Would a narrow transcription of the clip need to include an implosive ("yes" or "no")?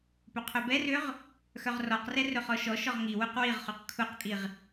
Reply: no